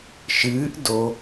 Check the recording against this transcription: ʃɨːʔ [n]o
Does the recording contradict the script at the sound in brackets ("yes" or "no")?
yes